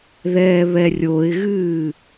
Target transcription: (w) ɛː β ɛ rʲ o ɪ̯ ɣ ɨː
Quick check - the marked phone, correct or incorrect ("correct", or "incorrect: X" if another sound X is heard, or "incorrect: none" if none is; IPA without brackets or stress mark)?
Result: incorrect: ð